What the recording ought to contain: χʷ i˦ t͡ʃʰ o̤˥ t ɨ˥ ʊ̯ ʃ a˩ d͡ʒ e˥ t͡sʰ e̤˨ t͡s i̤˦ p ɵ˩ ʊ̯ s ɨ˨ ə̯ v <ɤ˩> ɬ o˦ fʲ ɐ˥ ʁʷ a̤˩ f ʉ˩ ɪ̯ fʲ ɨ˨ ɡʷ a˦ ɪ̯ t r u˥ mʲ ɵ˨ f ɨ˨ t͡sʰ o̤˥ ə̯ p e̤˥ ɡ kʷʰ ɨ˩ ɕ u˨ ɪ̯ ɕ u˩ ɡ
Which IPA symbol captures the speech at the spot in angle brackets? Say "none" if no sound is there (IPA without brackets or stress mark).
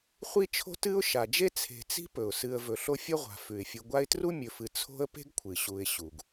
ɵ˩